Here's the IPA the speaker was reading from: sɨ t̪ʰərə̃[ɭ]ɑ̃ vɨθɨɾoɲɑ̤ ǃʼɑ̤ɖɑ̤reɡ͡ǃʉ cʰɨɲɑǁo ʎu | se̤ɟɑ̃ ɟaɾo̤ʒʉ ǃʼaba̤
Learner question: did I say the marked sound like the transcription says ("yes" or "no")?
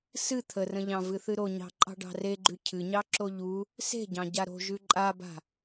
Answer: no